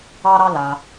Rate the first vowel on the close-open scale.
open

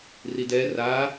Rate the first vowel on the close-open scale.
close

